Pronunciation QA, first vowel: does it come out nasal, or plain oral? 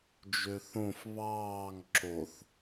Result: oral